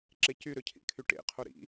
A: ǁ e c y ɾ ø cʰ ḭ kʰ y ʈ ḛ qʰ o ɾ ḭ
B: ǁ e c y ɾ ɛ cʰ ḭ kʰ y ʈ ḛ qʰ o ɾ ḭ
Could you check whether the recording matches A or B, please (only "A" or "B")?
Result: A